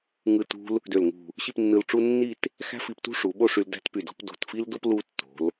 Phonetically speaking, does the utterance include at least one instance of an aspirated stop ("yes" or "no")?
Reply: no